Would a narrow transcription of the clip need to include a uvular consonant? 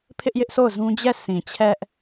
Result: no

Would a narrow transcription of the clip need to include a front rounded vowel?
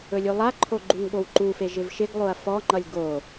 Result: no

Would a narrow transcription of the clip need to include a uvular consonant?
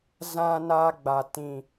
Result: no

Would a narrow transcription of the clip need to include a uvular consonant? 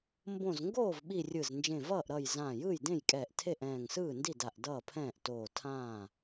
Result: no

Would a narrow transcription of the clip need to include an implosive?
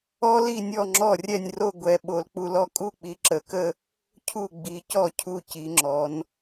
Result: yes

